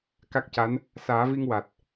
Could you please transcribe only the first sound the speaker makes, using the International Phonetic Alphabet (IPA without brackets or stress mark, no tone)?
k